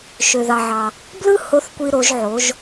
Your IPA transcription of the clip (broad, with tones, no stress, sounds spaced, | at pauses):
ʃ ø˩ ð ɑ˩ ʕ ɑ˩ | b l ɯ˥ h o˧˥ θ kʷ i˧ ɾ o˩˧ ʒ ʕ o˩˧ ʒ